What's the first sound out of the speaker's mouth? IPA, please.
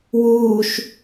w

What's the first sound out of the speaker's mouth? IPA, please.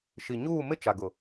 ʃ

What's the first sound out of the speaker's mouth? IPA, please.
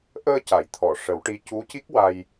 ʔ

